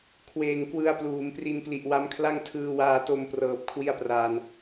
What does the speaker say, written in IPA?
kʰweː˨˩ŋ kwɯ˧a̯pluː˩˦mpri˧npli˨˩ʔ wa˦˥mkʰla˥˩ŋ tʰɯː˧waː˧to˧mprɤː˨˩p̚ kʰwi˥˩a̯praː˧n

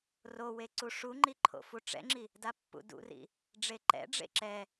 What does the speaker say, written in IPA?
rowe ǀuʂuŋ͡ǃi ǃʰo̰fuʈ͡ʂɛ̰ŋ͡ǁi | dapːṵdṵrḭ | ɖ͡ʐeǃɛ̰ɖ͡ʐḛ ǁɛ

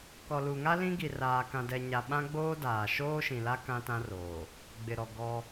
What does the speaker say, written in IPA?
kɔ˨lu˨ŋa˦ lĩ˦ɡi˨raː˨ kã˨dɛ˨ɲa˨ ɓã˦ɡ͡boː˦daː˨ ʃoː˦ʃĩ˨la˦ kã˦tã˦roː˨ | ɡ͡bɪ˨ɾɔ˨ ɡɔ˦

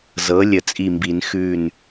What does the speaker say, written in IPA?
zɤ˩˥lʲə˨˩˦t͡sʼi˧˩mbi˨˩˦n xʉ˧˩n

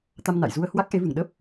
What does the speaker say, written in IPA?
t̪a˧mna̰˧˨jzu˧ə̯ hwa˦˥k̚ʔe˨˦vɨ˧˩ŋ ɗə˦˥p̚

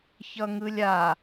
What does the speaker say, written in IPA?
çʌŋɯlʲa

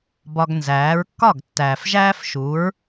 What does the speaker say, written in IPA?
bɒ˧ɡnzæː˩˥ɹ kːɒ˥˩ɡ tːæː˩fʒæː˥fʃu˩˥ɹ

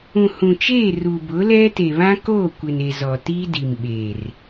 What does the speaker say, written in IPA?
ũ˨hũ˨t͡ʃeː˦˨ruː˨ bʊ˨˦lɛ˦te˨ βã˦koː˦˨kʷɪ˨ne˨ zɔ˨tiː˦ di˨mɓeː˨r

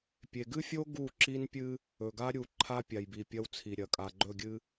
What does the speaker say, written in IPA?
pʲe˨ɡɨ˦fʲo˦ ɡu˦˨ǁi˦npʲɨ˦ | ɵ˨ɡa˦ ɾʲu˨ ǃʰa˦pʲa˨jbi˨ pʲɐ˦wt͡sʰi˨ɾʲɐ˨ kʼa˨ɡ͡ǃɵ˦˨ɡʲɨ˦

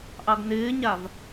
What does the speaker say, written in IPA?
ʔɑɡnɪːɲav

